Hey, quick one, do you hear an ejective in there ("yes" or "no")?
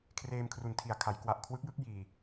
no